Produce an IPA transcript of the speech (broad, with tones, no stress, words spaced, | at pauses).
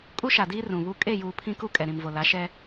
kʼu˦ʃa˨diː˦ rũ˨βu˦ kʼe˦˨juː˨ pʰĩ˦ku˦ kʼɛ˨ɾĩ˨mvo˨la˨˦ ʃɛ˦